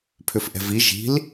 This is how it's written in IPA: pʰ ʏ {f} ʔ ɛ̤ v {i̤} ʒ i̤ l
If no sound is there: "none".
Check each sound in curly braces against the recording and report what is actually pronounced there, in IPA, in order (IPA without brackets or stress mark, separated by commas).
f, i